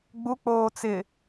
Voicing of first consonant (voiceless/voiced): voiced